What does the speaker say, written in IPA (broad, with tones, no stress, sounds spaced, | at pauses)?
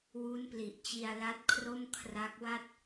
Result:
w u˦˥ n p l i˨˩ ʔ t͡ɕ i˧ a̯ l a˦˥ t̚ kʰ r o˥˩ m kʰ r a˦˥ k̚ w a˥˩ t̚